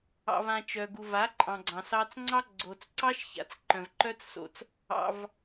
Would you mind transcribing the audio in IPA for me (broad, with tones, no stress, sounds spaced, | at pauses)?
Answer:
ɑ̰˧ v ã˧ t͡ʃ œ˨ ɡ u˨ v a˨˦ ǃʼ ɑ̃˨ ɡ͡ǀ ɑ̃˨ s ɑ˧ t͡s ŋ͡ǀ ɑ˦ ɡ͡ǀ o˨ t͡s ǀ ɑ˦ ʃ ç a̰˨ t͡s ǃ œ̃˨ v ǃ œ˦ t͡s s o̰˧ t͡s | ɑ̰˧ v